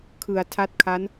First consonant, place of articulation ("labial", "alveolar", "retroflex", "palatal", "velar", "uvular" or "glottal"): velar